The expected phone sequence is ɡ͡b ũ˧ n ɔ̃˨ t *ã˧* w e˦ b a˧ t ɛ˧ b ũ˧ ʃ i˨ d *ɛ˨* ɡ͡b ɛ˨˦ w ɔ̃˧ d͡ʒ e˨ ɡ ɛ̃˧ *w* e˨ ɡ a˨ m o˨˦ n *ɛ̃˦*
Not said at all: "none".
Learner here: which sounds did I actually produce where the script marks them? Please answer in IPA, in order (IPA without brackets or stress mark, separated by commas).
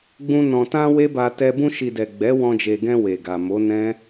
ã˧, ɛ˨, w, ɛ̃˦